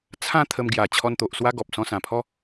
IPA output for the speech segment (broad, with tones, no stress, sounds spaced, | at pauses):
t͡sʰ ã˦ t̪ʰ ə˧ m ɡ j a˨˩ t͡ɕʰ ɔ˧ n t̪ o˨ ʔ s w a˦ ɡ ɔ˨ p̚ s ɔ̃˧ s ã˨˩ pʰ ɔ˦